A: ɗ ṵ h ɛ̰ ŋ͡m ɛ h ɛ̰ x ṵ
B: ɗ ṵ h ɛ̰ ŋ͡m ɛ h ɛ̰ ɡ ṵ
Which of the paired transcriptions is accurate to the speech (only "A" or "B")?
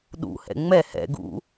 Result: B